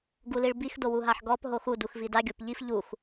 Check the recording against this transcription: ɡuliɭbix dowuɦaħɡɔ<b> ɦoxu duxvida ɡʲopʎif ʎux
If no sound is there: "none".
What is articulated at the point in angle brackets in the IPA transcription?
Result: p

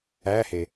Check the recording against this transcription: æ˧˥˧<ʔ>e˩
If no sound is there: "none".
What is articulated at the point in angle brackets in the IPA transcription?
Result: h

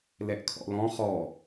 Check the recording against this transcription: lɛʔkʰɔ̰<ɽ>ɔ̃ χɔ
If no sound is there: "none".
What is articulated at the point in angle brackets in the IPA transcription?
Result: l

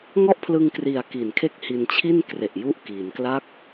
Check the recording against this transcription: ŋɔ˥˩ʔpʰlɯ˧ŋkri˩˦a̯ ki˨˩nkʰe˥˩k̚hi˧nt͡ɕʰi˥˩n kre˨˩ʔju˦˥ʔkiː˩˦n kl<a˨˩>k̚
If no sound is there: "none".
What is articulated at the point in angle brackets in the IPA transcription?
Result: a˦˥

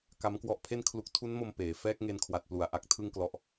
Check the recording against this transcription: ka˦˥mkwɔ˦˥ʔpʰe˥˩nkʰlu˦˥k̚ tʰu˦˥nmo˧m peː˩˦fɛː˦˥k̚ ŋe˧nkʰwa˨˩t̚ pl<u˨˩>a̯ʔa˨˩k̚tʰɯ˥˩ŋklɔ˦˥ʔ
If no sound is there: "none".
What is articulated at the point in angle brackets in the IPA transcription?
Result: u˩˦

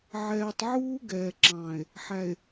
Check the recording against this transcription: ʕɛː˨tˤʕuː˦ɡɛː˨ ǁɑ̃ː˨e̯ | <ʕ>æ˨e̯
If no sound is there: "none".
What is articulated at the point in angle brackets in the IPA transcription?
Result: ħ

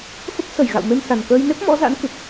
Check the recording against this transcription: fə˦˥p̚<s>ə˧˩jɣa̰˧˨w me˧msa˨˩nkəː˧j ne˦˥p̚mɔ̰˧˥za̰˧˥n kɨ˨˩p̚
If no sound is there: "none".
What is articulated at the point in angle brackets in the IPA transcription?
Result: s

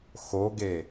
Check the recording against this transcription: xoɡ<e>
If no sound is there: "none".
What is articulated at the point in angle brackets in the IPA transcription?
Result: e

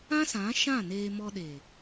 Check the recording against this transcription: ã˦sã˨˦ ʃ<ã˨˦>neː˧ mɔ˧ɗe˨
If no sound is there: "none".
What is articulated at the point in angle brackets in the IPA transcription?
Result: ã˦˨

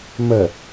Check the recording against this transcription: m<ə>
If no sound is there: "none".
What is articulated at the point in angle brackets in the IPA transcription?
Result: ə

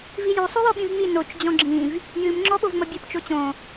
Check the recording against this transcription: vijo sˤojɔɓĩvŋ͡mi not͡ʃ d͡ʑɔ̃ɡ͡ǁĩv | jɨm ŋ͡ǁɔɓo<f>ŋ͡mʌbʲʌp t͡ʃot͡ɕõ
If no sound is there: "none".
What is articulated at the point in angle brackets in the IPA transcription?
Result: v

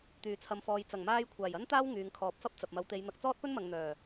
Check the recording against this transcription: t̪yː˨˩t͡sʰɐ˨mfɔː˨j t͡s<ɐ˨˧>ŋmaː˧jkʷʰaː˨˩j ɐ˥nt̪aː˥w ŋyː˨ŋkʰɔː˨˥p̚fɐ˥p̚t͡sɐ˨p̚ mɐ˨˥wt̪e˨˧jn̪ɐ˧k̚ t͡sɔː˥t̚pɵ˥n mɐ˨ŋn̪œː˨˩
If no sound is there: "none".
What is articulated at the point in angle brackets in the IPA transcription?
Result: ɐ˨˩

